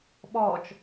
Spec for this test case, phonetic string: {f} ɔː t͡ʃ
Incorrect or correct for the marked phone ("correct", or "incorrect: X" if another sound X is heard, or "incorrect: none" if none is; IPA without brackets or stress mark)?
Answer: incorrect: ɓ